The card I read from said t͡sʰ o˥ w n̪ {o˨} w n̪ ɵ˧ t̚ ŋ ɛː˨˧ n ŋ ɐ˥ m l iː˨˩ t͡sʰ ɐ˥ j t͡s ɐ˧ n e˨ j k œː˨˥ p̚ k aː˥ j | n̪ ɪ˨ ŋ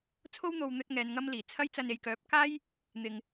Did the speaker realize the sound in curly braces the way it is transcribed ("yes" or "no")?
yes